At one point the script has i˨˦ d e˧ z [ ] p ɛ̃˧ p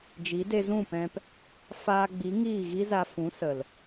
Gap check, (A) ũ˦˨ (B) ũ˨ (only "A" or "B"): A